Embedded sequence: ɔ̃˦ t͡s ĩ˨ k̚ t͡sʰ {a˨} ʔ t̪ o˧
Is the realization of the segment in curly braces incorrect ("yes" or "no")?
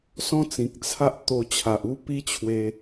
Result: yes